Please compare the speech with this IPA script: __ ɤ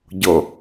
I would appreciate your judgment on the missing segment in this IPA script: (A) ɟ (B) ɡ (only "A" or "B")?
A